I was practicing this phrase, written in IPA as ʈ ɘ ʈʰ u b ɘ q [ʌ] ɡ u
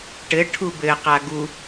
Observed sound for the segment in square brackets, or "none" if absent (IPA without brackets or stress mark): a